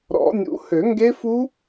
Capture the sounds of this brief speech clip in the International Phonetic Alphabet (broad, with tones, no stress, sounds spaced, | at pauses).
ɾ ɔ̰˨˩˦ nʲ ṵ˨˩˦ h ø˨˩˦ ŋ ɡ e˦˥ f u˦˥